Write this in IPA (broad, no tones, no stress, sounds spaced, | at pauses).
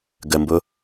ɡ ə m b ʊ